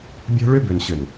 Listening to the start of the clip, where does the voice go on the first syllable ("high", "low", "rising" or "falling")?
high